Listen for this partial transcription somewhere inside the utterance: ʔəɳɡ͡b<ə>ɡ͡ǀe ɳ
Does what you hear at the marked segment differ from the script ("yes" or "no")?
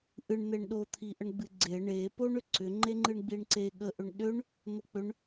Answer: yes